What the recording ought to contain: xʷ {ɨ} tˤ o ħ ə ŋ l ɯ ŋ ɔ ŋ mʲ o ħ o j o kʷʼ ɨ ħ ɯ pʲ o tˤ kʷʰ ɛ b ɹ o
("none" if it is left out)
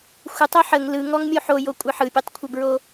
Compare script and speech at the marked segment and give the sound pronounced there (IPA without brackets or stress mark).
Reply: ə